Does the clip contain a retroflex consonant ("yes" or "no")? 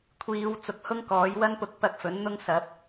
no